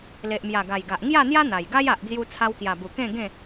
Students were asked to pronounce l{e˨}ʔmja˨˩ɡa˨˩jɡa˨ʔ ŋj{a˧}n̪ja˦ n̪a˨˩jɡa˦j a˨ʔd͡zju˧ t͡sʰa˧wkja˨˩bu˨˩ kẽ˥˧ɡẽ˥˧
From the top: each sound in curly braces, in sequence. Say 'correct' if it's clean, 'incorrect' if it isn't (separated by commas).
correct, incorrect